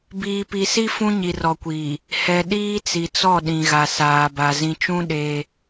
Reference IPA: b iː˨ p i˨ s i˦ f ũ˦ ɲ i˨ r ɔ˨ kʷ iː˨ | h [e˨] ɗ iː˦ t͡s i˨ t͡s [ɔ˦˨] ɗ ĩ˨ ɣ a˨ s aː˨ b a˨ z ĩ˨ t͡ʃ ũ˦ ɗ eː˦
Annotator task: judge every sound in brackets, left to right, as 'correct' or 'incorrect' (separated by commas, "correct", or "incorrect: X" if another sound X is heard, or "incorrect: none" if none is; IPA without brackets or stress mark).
incorrect: ɛ˨, correct